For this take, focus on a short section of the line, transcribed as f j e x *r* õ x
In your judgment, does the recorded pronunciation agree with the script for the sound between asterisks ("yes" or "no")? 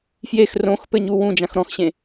yes